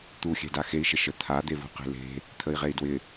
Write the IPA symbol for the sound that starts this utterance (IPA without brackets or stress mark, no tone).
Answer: t̪